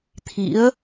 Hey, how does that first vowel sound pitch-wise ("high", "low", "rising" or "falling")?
rising